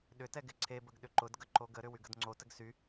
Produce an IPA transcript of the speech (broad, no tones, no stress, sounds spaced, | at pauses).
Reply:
ɗ ʏ t ɛ ɡ ɪ ǀʰ e b ə ɡ ɗ ʏ ǃ ʊ d ɡ ə ǃ o ɡ ə ɾ ʏ w y ɡ ə d ŋ͡ǀ o t ə ɡ s y